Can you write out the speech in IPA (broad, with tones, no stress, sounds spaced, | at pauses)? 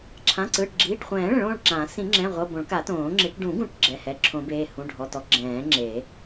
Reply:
ǁʰ ã˩˧˩ ǀ ɯ˩˧˩ ʈ ɡ͡ǁ iː˩˧˩ ʈ χʷ ɛ̃ː˨˩˦ ɭ ɛ̃˨˩˦ ɭ õː˩˧˩ ɭ ǁ ãː˨˩˦ s ĩ˨˩˦ ŋ͡ǁ ɛ̃˩˧˩ ʁʷ ɤ˩˧˩ b õ˨˩˦ ɭ k a˨˩˦ t õː˨˩˦ ŋ͡ǁ i˨˩˦ ʈ ɖ ũ˨˩˦ ɡ ũ˨˩˦ ʈ ɡ͡ǁ ɛ˩˧˩ h ɛ˩˧˩ ǁʰ õ˨˩˦ b eː˩˧˩ h ũ˩˧˩ ɖʱ ɔ˩˧˩ t ɔ˨˩˦ ɡ͡ǁ ɛ̃ː˨˩˦ ŋ͡ǁ e˨˩˦